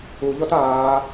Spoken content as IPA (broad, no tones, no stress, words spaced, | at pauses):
uʎɔt aː